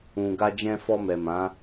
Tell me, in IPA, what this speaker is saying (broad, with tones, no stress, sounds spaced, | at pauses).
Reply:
ũ˨ ɡ a˧ d͡ʒ ɛ̃˧ f ɔ˧ m ɛ˨ m ã˨˦